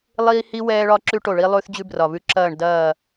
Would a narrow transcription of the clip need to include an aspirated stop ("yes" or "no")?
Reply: no